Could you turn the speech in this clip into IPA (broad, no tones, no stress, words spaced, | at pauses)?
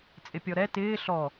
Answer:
t͡sʼɪpʲɔɾɛ tɪː ɬɔ